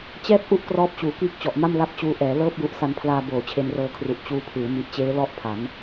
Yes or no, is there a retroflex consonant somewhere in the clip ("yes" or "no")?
no